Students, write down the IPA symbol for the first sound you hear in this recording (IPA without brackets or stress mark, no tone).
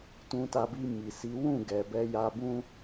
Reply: t